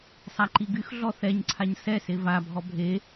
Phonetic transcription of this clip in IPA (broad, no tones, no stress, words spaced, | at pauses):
sˤaǃiɡyxɮɔ θɛɲǀʰaɲ sɛse vabʱɔ bʱe